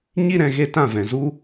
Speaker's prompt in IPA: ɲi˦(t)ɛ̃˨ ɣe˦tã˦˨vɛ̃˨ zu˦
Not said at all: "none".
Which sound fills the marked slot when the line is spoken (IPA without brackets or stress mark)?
ɾ